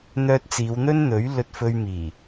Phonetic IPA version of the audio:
n̪ œː˧ t̚ t͡s iː˨˧ w n̪ ɵ˥ n n̪ ɵ˨˥ ɥ l ɵ˧ t̚ f ɵ˧ ɥ m iː˨˩

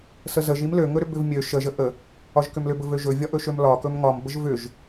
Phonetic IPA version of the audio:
s ə z ə ʒ i m l ø ŋ ɵ ɾ ʏ b ʏ v mʲ ø ʃ ə ʒ ə ʔ ə | ɒ ʒ k ʏ m l ʏ b ɵ v ø ʒ ɵ vʲ ɒ ʔ ɵ ʃ ø m l ɒ k ɵ m ŋ ɒ m b ə ʒ v ʏ ʒ

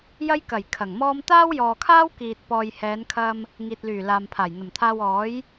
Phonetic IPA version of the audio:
j ɐ˥ j k ɐ˨˩ j kʰ ɐ˨˩ ŋ m ɔː˥ m t̪ aː˥ w j ɔː˨ kʰ aː˥ w k iː˨ t̚ p ɔː˨ j h ɛː˨˧ n kʰ ɐ˧ m | ŋ iː˨ t̚ l yː˨˩ l aː˨ m pʰ aː˨˩ j n̪ ɐ˨˩ m t̪ʰ aː˧ w ɔː˨˥ j

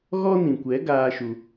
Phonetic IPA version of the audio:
ɣ ɔ˦ n ĩ˨ kʷ ɛ˨˦ ɡ aː˦ ʃ u˧

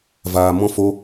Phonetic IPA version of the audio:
v aː˧ m ɔ̃˦ f o˦

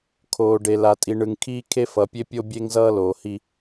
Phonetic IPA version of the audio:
kʰ oː˨ ɖ e˨ l a˨ tʼ i˨ ɳ ɯ˨ ŋ kʰ iː˦ kʰ e˦ f ʌ˨ pʲ e˦ pʲ o˦ bʲ e˦ ŋ z ʌː˦ l oː˨ h i˦

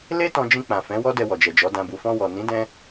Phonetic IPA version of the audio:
l e˦ t ɔ̃˧ d͡ʒ ĩ˧ k͡p ã˨ f ɛ̃˨˦ w ɔ˦ d ɛ˧ w ɔ˨ d͡ʒ ɛ˨ d͡ʒ ɔ˨˦ d ã˧ b u˨ f ɔ̃˧ w ɔ˨ n ĩ˨˦ d ɛ̃˦

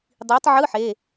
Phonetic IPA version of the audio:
dˤ iː˨˦ tˤ ʕ ɯ˧˥˧ ħ e˩˧˩

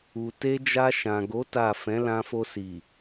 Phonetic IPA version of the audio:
u˨ t e˧ d͡ʒ a˧ ʃ ã˨ ɡ o˨˦ t a˦˨ f ɛ̃˨˦ l ã˧ f o˧ s i˨

